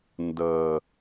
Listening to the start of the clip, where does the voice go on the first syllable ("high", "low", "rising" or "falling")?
low